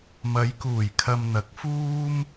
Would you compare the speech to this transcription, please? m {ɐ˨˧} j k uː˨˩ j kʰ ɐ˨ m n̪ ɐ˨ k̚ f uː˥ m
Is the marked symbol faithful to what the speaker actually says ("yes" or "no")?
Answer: yes